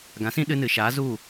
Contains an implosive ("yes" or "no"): yes